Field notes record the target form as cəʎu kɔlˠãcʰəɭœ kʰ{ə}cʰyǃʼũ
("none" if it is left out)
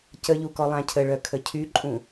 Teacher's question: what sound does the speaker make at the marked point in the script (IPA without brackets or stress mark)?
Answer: ə